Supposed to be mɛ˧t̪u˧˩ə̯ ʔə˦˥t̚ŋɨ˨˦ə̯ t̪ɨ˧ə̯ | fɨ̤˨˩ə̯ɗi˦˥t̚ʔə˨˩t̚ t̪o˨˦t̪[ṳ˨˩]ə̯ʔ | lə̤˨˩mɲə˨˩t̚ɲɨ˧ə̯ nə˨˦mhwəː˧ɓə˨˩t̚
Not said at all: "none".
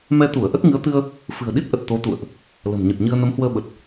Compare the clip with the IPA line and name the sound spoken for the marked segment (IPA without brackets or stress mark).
ṵ˧˨